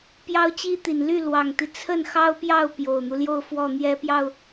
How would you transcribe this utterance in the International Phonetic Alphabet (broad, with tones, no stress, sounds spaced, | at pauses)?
p j ɑ˥ ʊ̯ t͡ɕ i˥ t̪ i˨˩ n l y˥˩ l w ɑ˨˩ ŋ t̪ i˦ t͡sʰ ə˥˩ n x ɑ˥ ʊ̯ p j ɑ˥˩ ʊ̯ p j o˨˩ ʊ̯ n̪ u˦ l j o˥˧ ʊ̯ f w ɔ˥˩ n̪ j ɛ˥ p j ɑ˥˩ ʊ̯